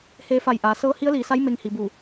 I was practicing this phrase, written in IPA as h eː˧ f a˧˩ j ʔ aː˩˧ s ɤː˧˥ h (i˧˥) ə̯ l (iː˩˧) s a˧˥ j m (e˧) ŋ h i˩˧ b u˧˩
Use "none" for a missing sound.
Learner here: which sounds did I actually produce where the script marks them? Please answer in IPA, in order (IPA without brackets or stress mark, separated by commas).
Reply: i˧˥, iː˩˧, e˧